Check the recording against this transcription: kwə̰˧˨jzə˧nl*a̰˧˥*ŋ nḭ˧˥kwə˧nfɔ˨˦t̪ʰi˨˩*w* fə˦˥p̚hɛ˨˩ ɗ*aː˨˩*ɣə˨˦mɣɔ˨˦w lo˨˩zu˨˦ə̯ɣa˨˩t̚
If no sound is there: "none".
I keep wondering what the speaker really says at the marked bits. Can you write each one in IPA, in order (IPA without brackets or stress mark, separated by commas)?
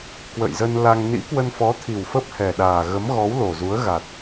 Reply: a˧, w, aː˨˩